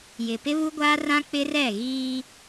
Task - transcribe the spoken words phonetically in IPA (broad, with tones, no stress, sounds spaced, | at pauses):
j ɪ˨ p ɪ˦ β u˦ ɡʷ aː˦ r ã˦ k͡p ɪ˦ r ɛ˦˨ ɣ iː˦